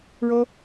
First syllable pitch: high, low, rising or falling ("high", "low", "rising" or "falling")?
high